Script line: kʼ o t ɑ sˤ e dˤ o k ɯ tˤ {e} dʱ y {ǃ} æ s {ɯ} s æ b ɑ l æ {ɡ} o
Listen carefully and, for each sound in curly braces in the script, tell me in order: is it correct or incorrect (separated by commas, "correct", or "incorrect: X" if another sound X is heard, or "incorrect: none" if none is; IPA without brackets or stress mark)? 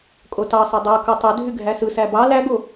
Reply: incorrect: ø, incorrect: ɡʱ, correct, correct